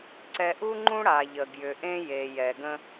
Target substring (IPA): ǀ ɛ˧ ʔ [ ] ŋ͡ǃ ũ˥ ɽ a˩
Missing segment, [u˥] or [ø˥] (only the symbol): u˥